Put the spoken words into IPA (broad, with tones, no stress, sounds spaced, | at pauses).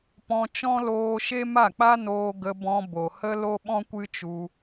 p ɔ̃˧ t͡ʃ ɔ̃˦ l oː˧ ʃ e˦ m a˦˨ k͡p a˦ n oː˧ ɡ ə˧ b ɔ̃˧ b o˨ h ə˦ l o˦ ɓ ɔ̃˦ kʷ ɨ˦ t͡ʃ u˧